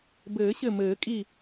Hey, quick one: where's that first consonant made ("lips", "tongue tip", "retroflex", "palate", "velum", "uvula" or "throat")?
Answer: lips